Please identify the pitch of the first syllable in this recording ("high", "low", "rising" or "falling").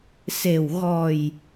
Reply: low